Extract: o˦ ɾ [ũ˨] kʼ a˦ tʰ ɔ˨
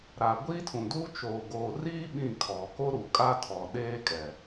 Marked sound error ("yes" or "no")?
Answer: yes